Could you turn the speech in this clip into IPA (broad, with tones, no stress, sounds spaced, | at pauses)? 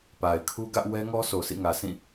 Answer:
p a˨ ɪ̯ kʰ u˦ ɡ ä˦ ʔ w ɛ˦ ŋ ɔ˦ sʰ o˨ s ḭ˦˨ ŋ ä˨ s ĩ˦˨